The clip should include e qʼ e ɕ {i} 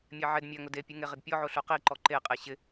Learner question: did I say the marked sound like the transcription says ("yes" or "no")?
no